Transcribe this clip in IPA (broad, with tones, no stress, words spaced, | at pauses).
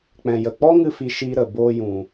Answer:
k͡pɛ̃˨jə˨ k͡pɔ˦ŋɨ˧fi˨ ʃi˧ɾə˨boː˧jũ˨